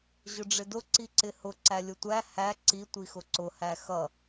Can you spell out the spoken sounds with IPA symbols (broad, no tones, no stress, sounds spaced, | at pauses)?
ʑ ʊ ɖ͡ʐ ɪ d ʊ ǀ i ǀ ɪ h ʊ ǀ æ lʲ ʊ tʷ æ h æ ǀ i tʷ i x ʊ ǀ ʊ h æ x ʌ